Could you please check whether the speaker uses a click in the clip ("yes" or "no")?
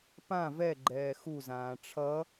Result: yes